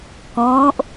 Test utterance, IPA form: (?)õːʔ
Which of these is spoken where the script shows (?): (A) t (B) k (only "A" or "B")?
B